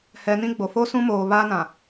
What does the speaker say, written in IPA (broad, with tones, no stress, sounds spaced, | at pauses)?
h ɛ˨ n ĩ˦ ɡ͡b o˨ f o˦ s ũ˦ m oː˨ β aː˦ n ã˨